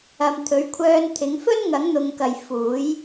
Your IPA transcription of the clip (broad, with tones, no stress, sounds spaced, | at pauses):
ɐ˧ m t̪ʰ ɵ˨˧ ɥ kʷʰ œː˧ n t̪ʰ ɪ˨˥ ŋ f ɵ˥ n ŋ ɐ˨˥ ŋ n̪ ʊ˨ ŋ k ɐ˨ j f uː˨˥ j